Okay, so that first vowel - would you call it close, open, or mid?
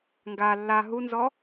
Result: open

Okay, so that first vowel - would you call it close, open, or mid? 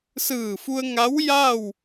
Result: close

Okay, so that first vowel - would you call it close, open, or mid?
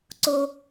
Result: mid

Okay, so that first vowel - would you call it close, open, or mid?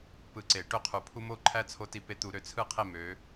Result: close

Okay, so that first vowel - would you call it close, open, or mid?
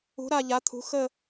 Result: close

